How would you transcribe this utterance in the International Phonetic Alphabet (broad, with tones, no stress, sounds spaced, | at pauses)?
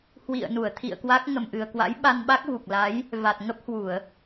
h w ḭ˧˨ ə̯ n u˧˩ ə̯ t̪ʰ ḭ˧˨ ə̯ k w a˦˥ k̚ ŋ ə˨˩ m ʔ ɨ˨˩ ə̯ k w a̰˧˥ j ɓ a˧ n ɓ a˦˥ k̚ v u˨˩ k̚ l a˨˦ j | v a˨˩ t̚ ŋ ə˦˥ p̚ h w u˧˩˨ ə̯